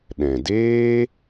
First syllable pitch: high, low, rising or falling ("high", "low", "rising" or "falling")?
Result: low